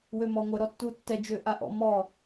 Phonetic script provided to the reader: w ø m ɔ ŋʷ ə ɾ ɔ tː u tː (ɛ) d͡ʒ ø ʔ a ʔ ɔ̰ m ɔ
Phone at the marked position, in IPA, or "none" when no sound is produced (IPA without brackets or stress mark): ɛ